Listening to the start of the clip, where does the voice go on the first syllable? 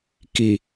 low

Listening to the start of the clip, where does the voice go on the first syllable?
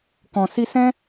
low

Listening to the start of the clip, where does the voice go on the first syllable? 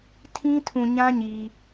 high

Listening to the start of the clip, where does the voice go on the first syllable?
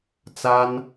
high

